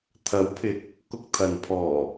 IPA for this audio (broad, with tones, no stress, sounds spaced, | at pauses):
t̪ʰ ɐ˨˥ w pʰ ɪ˨ k̚ | k ʊ˧ k̚ t̪ʰ ɐ˨ n pʰ ɔː˨˩